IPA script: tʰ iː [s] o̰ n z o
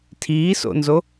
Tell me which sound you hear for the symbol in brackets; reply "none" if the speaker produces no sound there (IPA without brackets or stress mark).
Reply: s